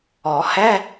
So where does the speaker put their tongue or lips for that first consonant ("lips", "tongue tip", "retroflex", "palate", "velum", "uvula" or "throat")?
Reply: throat